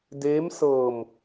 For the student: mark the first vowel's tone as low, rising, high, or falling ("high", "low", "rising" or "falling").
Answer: rising